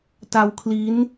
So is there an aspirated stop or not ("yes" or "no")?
yes